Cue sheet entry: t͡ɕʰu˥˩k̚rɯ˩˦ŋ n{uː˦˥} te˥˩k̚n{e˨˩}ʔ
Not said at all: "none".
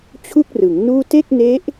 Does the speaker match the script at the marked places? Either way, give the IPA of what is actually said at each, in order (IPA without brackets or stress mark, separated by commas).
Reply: uː˥˩, e˦˥